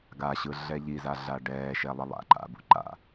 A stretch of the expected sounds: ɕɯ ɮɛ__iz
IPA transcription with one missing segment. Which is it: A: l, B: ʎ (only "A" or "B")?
B